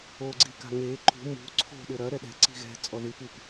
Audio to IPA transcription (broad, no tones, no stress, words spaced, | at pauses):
oɡ͡ǀi ka̤ŋe ǃṳ mṳ ǀʰo̤ ɗɘɾɐ ɾɛɗɛ̤ ǀi̤ɣɛ̤ t͡sʼɔðɨpɨp